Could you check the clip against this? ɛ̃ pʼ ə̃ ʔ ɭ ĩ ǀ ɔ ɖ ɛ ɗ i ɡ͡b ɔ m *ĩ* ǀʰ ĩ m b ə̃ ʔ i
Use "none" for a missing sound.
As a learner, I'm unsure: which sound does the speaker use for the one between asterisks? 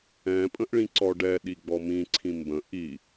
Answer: ĩ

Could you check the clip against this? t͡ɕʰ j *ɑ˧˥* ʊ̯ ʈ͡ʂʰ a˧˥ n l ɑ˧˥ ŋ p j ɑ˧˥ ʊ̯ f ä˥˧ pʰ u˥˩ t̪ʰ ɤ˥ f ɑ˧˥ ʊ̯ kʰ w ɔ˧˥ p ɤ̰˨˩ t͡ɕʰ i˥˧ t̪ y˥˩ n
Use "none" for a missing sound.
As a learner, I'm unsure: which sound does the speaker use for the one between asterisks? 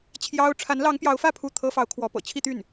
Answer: ɑ˥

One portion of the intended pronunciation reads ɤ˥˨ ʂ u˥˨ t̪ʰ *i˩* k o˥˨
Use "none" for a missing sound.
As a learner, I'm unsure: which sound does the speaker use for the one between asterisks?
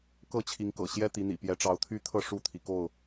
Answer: i˩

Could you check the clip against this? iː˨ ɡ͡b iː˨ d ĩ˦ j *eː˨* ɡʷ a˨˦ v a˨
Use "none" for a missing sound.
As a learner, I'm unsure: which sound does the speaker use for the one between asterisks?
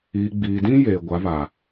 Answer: eː˨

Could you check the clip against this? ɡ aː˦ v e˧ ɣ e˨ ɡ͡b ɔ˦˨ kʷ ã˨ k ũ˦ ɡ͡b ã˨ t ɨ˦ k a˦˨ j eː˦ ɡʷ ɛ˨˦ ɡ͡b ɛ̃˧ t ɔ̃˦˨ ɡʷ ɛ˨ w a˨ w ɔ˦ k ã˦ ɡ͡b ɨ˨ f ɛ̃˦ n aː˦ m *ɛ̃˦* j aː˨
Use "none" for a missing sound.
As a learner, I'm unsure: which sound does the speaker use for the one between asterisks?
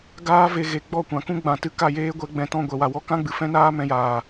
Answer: ɛ̃˧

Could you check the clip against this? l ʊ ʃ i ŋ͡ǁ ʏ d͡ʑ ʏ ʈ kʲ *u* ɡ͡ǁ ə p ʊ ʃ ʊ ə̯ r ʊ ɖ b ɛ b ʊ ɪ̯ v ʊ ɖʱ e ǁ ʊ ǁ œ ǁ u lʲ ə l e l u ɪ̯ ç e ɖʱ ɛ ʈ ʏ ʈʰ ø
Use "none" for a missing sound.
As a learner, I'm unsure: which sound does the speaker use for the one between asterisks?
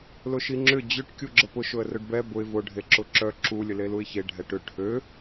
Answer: u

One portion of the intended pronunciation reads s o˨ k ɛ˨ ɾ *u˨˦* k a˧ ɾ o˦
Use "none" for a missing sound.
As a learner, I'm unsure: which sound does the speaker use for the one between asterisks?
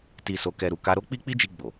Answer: u˨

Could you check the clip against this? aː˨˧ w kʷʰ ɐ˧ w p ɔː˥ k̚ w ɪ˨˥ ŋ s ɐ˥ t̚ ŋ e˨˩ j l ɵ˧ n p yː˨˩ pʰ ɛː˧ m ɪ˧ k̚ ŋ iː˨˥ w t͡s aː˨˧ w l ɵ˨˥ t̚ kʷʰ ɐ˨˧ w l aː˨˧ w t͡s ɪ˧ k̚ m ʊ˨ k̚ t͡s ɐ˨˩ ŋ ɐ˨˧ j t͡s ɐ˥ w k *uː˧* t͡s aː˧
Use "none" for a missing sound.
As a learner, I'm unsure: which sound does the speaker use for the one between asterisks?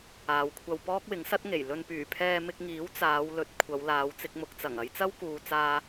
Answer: uː˨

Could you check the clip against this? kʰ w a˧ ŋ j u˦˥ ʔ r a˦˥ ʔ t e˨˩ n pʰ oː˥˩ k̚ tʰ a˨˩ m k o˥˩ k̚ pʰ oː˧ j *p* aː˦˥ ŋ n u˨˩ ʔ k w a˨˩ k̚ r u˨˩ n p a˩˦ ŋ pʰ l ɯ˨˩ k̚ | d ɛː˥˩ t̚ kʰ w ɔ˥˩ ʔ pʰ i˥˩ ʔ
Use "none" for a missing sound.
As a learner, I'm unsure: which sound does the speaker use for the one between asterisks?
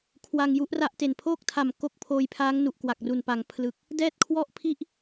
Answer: pʰ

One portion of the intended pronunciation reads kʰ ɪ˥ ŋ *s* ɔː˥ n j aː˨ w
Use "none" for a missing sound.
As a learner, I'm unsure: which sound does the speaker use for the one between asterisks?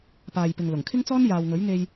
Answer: t͡s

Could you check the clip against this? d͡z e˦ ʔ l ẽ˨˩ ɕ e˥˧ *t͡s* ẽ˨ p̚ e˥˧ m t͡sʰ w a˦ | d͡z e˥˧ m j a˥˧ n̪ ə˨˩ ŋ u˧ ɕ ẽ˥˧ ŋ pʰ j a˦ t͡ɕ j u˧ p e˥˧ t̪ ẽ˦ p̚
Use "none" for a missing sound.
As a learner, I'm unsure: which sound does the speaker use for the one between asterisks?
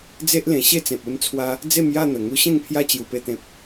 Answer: t͡s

